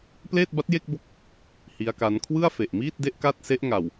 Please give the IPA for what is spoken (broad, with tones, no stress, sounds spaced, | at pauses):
p l eː˥˩ t̚ b a˦˥ t̚ j e˥˩ k̚ b o˦˥ k̚ | h i˦˥ a̯ k a˦˥ n kʰ w ɯ˥˩ a̯ f e˨˩ ʔ m iː˥˩ t̚ d e˦˥ ʔ k a˥˩ t̚ s e˦˥ ʔ ŋ a˨˩ w